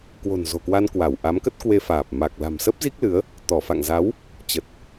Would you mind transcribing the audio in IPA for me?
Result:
k w o̤˨˩ n z o̤˨˩ k w a˧ n k w a˧˩ w ʔ a˨˦ m k ə˦˥ t̚ k w e˧ f aː˨˩ p̚ m a˨˩ k̚ l a̤˨˩ m s ə˦˥ p̚ z i˦˥ k̚ l ɨ˨˦ ə̯ | t̪ ɔ˧˩ f a̰˧˨ ŋ z a˨˦ w | t͡ɕ ə˨˩ t̚

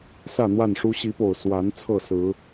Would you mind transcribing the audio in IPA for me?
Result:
s ä˥˨ n̪ w a˥˨ n ʂ u˦ ɕ i˨˦ p o˨˩ ʊ̯ s w a˨˦ n t͡sʰ ɤ˥˨ s ɹ̩˨˦

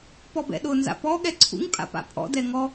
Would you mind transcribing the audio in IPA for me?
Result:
p ɔ b ɛ̰ ɗ ʊ n z a̰ p ɔ ɠ ɛ ǀʰ ṵ ŋ pʼ a̰ p a̰ pʼ ɔ̰ d ɛ ŋ ɔ

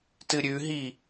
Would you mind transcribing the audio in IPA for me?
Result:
t ɨ ɾʲ ʉ ɦ i

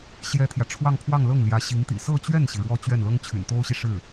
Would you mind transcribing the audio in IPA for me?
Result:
ɕ j ɛ˥ t̪ʰ j ä˨ ʈ͡ʂʰ w ɑ˥˧ ŋ pʰ w ɑ˥˧ ŋ l ɤ˥˩ ŋ l j ä˧˥ ɕ i˧˥ ŋ t̪ ḭ˨˩ s ɤ˥˧ t͡ɕ ɥ ɛ˥˩ n ɕ i˩ ɻ w ɔ˥˧ t͡ɕ ɥ ɛ˥˩ n l ɤ˥ ŋ t͡ɕʰ y̰˨˩ n t̪ o˥ ʊ̯ ɕ i˨ ʂ ɻ̩˥˩

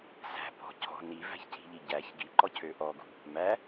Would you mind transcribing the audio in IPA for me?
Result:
s æ̤ p ɔ̤ cʰ ɔ̤ n i v æ̤ ç cʰ i̤ ʎ i ɟ æ ç ɡ i ǃ ɔ cʰ ø ʔ ɔ ɡ ṳ | m æ

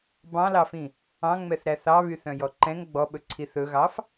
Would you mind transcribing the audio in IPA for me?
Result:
b ɑ̃ l ɑ f ĩ | ɑ̃ ŋ͡m ɛ θ ɾ æ θ ɑ β y θ œ̃ j ɔ ǃ ɛ̃ ŋ ɡ͡b ɔ ɓ ɵ ǀʰ i θ ɵ ɣ ɑ f

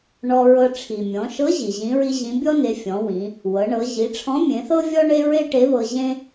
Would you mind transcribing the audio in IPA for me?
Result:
ɳ ɔ˧ ɹ ɤ˧ ʈ͡ʂʰ i˩ mʲ ɔ̃˩˧ ʃ ɤ˧˥ ʑ i˩ ʑ ĩ˧˥ ɹ i˥ ʑ ĩ˧˥ bʲ ɔ˥ n e˩˧ fʲ ɔ̃˩˧ w ĩ˩˧ | w ɤ˩˧ ɳ ɤ˩˧ ʑ i˩˧ ʈ͡ʂʰ ɔ̃˧˥ mʲ ẽ˩˧ θ ɤ˥ vʲ ɔ˥ ɳ e˥ ɹ e˥ ʈ e˧˥ β ɤ˧ ʑ ẽ˥

